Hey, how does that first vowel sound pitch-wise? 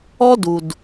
high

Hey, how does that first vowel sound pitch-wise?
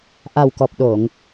low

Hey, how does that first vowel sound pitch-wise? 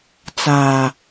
low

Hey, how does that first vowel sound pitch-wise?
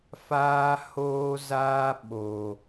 high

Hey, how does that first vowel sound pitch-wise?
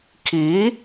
rising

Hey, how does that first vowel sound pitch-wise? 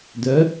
rising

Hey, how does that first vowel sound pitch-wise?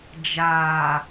low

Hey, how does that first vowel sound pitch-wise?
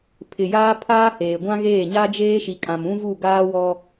low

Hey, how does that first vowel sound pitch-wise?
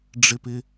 high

